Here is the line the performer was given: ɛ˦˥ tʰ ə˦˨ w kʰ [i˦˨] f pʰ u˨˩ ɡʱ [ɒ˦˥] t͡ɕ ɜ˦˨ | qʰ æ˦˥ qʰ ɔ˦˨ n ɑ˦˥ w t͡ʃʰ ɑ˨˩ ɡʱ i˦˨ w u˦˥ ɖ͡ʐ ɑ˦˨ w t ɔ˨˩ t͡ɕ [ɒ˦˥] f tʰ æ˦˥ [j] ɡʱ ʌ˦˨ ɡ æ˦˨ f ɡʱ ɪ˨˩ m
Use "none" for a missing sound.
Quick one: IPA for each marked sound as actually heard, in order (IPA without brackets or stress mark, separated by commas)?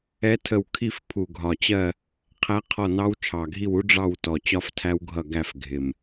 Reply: i˦˨, ɒ˨˩, ɒ˦˥, w